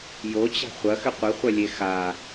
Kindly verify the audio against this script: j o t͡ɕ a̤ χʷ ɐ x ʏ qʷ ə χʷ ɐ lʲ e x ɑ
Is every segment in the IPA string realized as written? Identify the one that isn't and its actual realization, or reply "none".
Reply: ɑ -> a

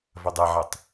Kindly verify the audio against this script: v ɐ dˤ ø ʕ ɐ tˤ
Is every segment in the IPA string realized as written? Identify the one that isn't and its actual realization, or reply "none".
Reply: ø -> e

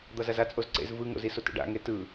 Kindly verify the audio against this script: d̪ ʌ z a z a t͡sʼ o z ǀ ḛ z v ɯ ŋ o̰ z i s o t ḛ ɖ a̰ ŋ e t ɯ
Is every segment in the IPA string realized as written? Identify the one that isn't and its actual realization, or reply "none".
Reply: none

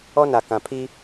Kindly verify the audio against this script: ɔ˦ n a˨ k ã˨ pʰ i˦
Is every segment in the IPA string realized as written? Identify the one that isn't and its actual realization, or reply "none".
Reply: none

